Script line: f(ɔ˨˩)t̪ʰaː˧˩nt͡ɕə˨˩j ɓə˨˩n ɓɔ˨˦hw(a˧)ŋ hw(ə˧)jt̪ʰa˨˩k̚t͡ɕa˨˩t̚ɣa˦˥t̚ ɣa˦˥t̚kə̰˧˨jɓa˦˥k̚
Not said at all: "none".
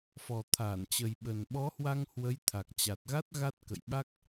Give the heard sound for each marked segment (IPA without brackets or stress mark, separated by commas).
ɔ˨˩, a˧, ə˨˦